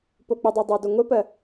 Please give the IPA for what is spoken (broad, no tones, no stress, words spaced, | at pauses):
pok͡pɪdˤɜdˤæ doŋʷɪpɜ